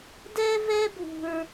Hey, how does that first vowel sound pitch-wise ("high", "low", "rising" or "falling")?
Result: high